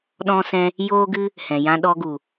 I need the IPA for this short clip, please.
ɗ ɔ̃˦ s ɛ̃˦ | j oː˦ ɡ ɨ˦ | h ɛ̃˨ j ã˧ ɗ ɔ˧ ɡ u˨

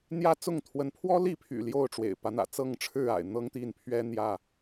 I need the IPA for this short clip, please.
n̪ j ä˦ t͡s ʊ˥˨ ŋ t̪ʰ w ə˨˦ n pʰ w ɔ˦ l i˥˨ pʰ y̰˨˩ l j o˥˨ ʊ̯ ʈ͡ʂ w ḛ˨˩ ɪ̯ p ä˦ n̪ ä̰˨˩ t͡s ɤ˥˨ ŋ ʈ͡ʂʰ ɻ̩˥˨ a̰˨˩ ɪ̯ n̪ ɤ˦ ŋ t̪ i˥˨ n pʰ ɥ ɛ˦ n̪ j ä˥˨

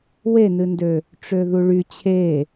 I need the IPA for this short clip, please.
w e n ɨ n d ø | ʈ͡ʂ ø ð u ɭ y t͡ɕʰ e

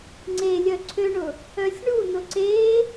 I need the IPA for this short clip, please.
ŋ͡ǀ e lʲ œ ǀʰ ø ɳ ʊ | œ sʲ ɳ u n ʊ ǀ e

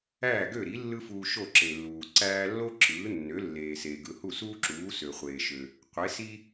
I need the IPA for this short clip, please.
æː˥˩ ɡ ø˥˩ ɾ i˩˥ lː ɯ˥ f uː˧ ʃ o˥˩ ǁ e˩ lː uː˩ ǀ æː˧ lː o˥ ǁ ɯː˩˥ nː ø˩˥ lː eː˩ s eː˩ ɡ ɯ˩ h u˥˩ s uː˥ ǁ uː˩˥ s ø˩ χʷ eː˩ ʃ ø˩ | qʷ e˩˥ s i˥

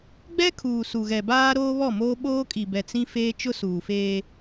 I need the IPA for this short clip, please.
ɡ͡b ɛ˦ kʰ uː˨ s u˨ ɣ ɛ˨ b aː˦ ɾ oː˦ β ɔ˦˨ m oː˦ ɓ oː˦ kʼ i˨ b ɛ˨ t͡s ĩ˦ f eː˦ t͡ʃ ʊ˦ s uː˨ f eː˦

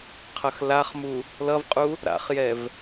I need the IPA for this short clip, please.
qʰ ʌ x l a χ m u | l ʌ v qʼ u | ɾ a̰ χ j ɛ v

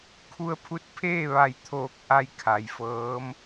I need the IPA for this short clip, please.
kʰ u˧ ə̯ pʰ u˧˥ t̚ pʰ eː˥˨ ʋ a˧˩ j t̪ʰ oː˧˩ k̚ ʔ a˥˨ j kʰ a˩ j f ɤː˧˥ m

